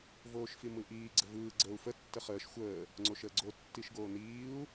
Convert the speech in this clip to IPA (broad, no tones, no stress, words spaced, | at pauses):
voːʃfimɯʔiː ɡ͡ǀəvɯː ɡ͡ǀəːu̯fə tːəχəːʃ xʷəː | ŋ͡ǀoʃəːɡ͡ǀo tːiʃɡoːniːu̯